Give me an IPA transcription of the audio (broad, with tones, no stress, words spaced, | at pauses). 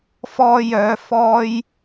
fɔː˧jœː˨˧ fɔː˧j